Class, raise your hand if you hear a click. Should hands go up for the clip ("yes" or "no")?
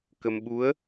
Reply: no